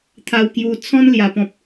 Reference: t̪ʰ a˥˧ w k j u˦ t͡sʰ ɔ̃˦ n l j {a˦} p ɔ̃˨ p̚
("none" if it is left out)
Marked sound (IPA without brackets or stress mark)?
a˨˩